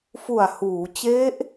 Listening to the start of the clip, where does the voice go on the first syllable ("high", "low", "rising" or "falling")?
low